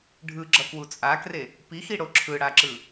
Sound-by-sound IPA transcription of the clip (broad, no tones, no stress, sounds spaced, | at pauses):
ɖʱ ɯ ɡ͡ǁ ʌ k w u t͡sʼ a k r e | p i x i ɽ o ǁʰ ɯ ɽ a ǁ ɯ